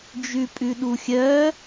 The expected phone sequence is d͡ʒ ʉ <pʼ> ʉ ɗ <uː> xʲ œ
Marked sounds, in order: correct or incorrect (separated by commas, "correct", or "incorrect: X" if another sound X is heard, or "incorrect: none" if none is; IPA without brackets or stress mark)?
correct, incorrect: u